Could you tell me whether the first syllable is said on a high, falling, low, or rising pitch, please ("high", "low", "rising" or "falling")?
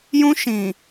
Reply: high